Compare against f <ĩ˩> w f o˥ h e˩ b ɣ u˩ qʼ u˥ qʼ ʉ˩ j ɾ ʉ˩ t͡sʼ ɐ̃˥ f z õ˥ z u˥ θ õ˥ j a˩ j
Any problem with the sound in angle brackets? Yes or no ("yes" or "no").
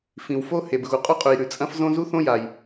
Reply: no